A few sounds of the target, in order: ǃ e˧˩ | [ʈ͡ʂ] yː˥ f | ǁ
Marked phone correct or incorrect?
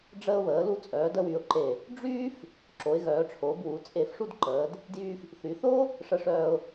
incorrect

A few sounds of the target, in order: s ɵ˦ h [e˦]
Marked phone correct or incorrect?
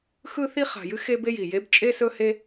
correct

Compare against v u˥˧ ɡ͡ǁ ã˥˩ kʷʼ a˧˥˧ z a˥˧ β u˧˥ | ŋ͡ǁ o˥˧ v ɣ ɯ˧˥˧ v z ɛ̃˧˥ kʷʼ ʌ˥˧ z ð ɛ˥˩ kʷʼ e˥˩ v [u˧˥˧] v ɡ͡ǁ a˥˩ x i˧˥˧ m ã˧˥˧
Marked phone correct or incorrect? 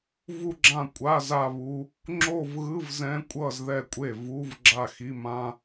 correct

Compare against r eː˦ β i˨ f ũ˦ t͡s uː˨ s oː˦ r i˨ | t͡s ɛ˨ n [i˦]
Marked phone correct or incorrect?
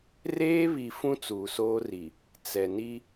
correct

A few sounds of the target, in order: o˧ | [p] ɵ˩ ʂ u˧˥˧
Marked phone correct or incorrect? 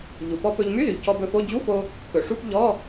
correct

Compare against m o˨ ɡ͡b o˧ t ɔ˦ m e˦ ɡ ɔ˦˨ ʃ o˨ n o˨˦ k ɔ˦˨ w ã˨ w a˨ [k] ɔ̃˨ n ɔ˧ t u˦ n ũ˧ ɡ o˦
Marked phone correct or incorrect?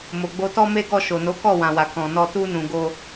correct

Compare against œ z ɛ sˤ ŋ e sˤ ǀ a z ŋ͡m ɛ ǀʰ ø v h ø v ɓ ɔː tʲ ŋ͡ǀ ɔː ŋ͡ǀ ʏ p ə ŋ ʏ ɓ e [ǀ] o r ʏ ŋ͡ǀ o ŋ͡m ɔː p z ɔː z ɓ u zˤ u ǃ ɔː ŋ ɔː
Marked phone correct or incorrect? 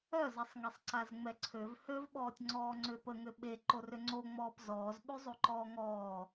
incorrect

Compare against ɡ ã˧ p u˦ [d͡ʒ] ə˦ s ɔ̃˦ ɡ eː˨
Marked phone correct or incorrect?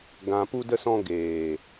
incorrect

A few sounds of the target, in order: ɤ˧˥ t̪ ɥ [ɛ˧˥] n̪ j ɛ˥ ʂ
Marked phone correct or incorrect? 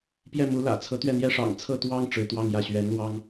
incorrect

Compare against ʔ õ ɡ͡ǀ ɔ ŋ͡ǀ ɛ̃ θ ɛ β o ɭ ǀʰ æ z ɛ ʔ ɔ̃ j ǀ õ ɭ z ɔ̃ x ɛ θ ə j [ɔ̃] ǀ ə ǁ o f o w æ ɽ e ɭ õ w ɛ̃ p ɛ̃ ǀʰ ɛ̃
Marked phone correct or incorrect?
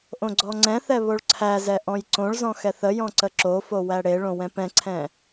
correct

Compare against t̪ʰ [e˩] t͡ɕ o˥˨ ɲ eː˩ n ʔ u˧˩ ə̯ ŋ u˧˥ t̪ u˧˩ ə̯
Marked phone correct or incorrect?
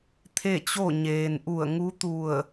incorrect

